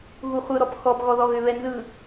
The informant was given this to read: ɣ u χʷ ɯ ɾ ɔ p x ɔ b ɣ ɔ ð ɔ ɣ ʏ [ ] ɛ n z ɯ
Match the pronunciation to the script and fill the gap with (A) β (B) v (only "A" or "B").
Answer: A